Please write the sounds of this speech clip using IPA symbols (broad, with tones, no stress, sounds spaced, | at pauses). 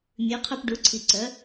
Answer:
mʲ ʉ˩˧ qʰ œ˧ p ɖ u˩˧ ǀʰ i˩ ǀ œ˩˧